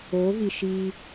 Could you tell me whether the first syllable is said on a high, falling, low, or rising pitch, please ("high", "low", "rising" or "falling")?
rising